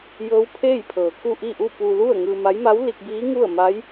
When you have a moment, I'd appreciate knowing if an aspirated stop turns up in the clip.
yes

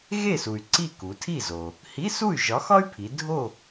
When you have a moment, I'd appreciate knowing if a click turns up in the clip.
yes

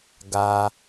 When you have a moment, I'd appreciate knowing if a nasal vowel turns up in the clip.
no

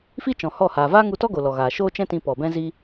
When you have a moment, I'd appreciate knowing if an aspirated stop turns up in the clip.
no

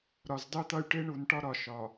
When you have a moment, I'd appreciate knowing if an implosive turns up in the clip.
no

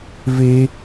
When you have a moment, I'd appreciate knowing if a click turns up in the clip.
no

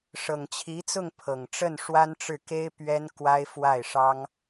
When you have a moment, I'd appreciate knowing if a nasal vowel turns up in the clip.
no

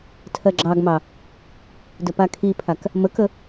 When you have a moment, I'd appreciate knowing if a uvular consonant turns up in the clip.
no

